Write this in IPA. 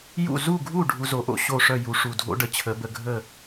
j ṵ˥˩ z u˥˩ ɡʱ u˥˩ ɖʱ u˧ z o˩˥ ʔ o̰˧ ɕ o˥˩ ʂ œ˥˩ j u˩˥ ʂ u˩ dʱ o̰˥ ɖ ə˧ t͡ɕʰ ə˩˥ b ə˧ ɡʱ ə˥˩

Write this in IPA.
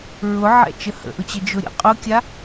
ɹ ʊ ʕ ɛ̰ t͡ʃ ə h ə̰ ʔ ʊ t͡ɕ ə d͡ʒ ʊ ɾʲ ə̰ qʼ ʊ kʲ a

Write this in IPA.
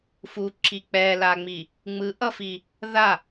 f u ǁ i k͡p ɛ l a ŋ͡m i | ŋ͡m ɯ ʔ ʌ f i | ð a

